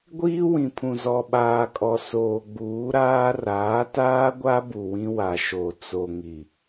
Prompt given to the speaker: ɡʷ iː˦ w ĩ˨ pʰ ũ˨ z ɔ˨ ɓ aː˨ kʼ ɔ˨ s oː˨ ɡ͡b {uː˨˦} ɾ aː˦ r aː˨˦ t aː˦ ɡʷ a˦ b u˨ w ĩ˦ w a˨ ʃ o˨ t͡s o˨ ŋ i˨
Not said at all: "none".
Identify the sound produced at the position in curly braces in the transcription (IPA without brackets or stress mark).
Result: uː˨˦